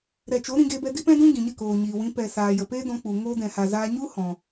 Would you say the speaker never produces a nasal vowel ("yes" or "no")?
no